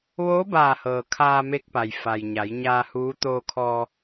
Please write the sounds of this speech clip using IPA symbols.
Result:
ʋ oː˧˥ b aː˧˩ h ɤː˩ kʰ aː˧ m e˧˥ k̚ p a˩ j f a˩ j ɲ a˩˧ j ɲ aː˧ h uː˧˥ t̪ oː˧ kʰ ɔː˧

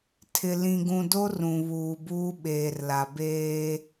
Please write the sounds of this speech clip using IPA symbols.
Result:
tʰ ɪ˨ l ĩ˨ ɡ ũ˨ d o˦ r ũ˨ β uː˨ b uː˦ ɓ eː˨ r l a˨ b eː˦

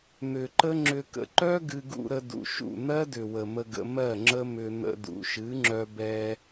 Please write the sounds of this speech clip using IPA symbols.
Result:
n̪ ʏ˨ ǃ ə˦ ŋ͡ǁ ʏ˧ k ə̰˨ ǃ œ˦ ɡ ɨ˧ ɡ ṵ˧ ɾ ə˧ d ṵ˨ ʃ ṵ˦˨ n̪ ɜ˦ d ʏ˨ w ə˨ m ə˧ ɡ ə̰˧ m ɜ˦˨ ŋ͡ǁ ə˦ m ʏ˧ n̪ ə̰˧ d ṵ˨ ʃ ɨ˨˦ ŋ͡ǁ œ˧ b ɛ˧

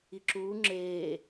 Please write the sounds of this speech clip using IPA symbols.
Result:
i ǁ uː ŋ͡ǁ eː

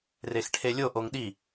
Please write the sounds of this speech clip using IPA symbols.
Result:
r e x ʈʰ e lʲ o ʔ o ŋ ɗ i

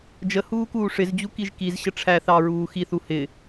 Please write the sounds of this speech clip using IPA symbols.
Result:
d͡ʒ ə h uː k uː ʂ ɪ z d͡ʑ u k i ʒ k i z ɕ ə ʈ͡ʂʰ æ θ ɑ ɹ uː x i θ u h ɪ

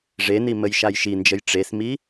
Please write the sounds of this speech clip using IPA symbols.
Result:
ʐ e n i m ə j ʃ a j ʃ i n d͡ʒ ə j ʈ͡ʂ e s m i

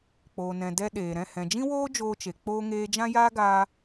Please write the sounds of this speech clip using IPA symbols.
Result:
k͡p oː˨ n ɛ̃˨ d ɛ˧ ɗ eː˨ ɾ ɛ̃˦˨ h ɛ̃˨ d͡ʒ ĩ˦ w oː˦ d͡ʒ oː˧ t͡ʃ e˨ k͡p oː˧ ŋ eː˧ d͡ʒ ã˦ j aː˦ ɡ aː˧

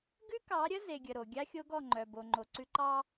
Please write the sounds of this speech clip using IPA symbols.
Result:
ɡ ʉ˦ k ɑ˨˦ ɾʲ ə˦ z e˨ ɡʲ ə˨ ɾ o˨ ɡʲ a˦ xʲ o˦ ɡ ɔ˦˨ ŋ͡ǃ œ˨ b o˨ ŋ͡ǃ o˨ ǀ ʉ˦ ǃ ɑ˦

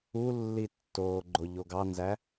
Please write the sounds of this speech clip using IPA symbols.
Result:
u lː i tː oː ɡ͡ǃ o ʎ o ɡ ɑ n z æ

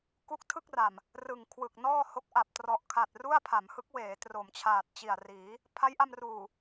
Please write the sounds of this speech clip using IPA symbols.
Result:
k u˦˥ k̚ tʰ ɯ˥˩ k̚ r a˨˩ m | r ɯ˨˩ ŋ kʰ w ɯ˨˩ k̚ n ɔː˥˩ h o˦˥ k̚ ʔ a˨˩ p̚ t r ɔ˨˩ ʔ kʰ a˨˩ t̚ r u˥˩ a̯ pʰ a˩˦ m h ɯ˦˥ k̚ w eː˩˦ t r o˩˦ m t͡ɕʰ aː˨˩ t̚ t͡ɕ i˨˩ a̯ r iː˩˦ | pʰ a˦˥ j ʔ a˧ m r uː˨˩

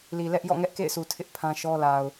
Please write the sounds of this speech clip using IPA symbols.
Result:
l i˨ l ɛ˦ ʔ j ɔ̰˦˨ ŋ ɛ˦ ʔ k ḛ˦˨ ɪ̯ sʰ u˨ tʰ ɪ˦ ʔ pʰ ã˦ ʃ ɔ˦ l a˨ ʊ̯

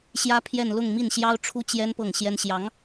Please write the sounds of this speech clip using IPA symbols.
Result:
ɕ j ä˥ pʰ j ɛ˥˧ n l ʊ˥˧ ŋ m i˥˩ n ɕ j ɑ˥ ʊ̯ ʈ͡ʂʰ u˥ t͡ɕ j ɛ˥ n p ɤ˥˩ ŋ ɕ j ɛ˥ n ɕ j ɑ˧˥ ŋ

